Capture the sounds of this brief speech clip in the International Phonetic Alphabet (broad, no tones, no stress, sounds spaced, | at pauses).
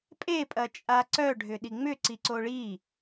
pʼ e pʼ ɐ t͡ʃʼ a ǀ œ ɖʱ ʏ ɗ i ŋ͡m ʏ ǀ i ǀ o ɭ i